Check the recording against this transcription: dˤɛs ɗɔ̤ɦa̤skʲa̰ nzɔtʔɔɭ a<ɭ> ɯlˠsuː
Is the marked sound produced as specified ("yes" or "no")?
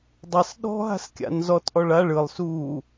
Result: yes